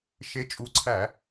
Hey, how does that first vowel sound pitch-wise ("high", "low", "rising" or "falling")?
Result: rising